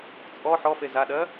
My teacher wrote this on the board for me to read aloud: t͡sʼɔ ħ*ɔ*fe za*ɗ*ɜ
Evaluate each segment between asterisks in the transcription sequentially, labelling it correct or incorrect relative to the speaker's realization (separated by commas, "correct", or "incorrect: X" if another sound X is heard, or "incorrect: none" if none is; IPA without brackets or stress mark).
correct, correct